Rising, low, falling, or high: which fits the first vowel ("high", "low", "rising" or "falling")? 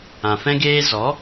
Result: low